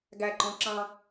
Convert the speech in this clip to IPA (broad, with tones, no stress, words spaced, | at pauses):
ɡæ˧˩ǃɔ̃˧ ǁɑ̃˧